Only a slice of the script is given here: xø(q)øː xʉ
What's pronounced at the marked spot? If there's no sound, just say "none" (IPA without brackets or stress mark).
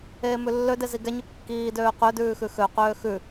q